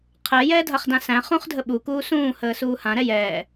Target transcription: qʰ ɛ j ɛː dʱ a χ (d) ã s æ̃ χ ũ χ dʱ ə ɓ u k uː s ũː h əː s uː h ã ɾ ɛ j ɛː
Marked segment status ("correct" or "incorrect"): correct